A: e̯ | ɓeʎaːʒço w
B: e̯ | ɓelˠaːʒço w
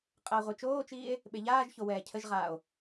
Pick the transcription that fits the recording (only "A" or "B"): A